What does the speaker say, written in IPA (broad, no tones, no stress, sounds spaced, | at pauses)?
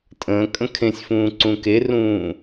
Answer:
tʼ ə̃ː kʼ ə̃ kʰ ẽ sʲ f ũː ǀ ũ k e r ũː